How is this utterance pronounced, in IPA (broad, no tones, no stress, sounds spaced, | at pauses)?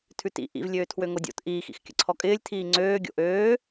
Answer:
tʰ ʉ t ḭ ʔ ḭ v lʲ øː tʰ w ø ŋ o dʲ o̰ t ʔ iː x ḭ x kʲ ə̰ ǀʰ ɔ kʼ ɪː lʲ tʰ iː ŋ͡ǀ øː ɡʲ o̰ ʔ øː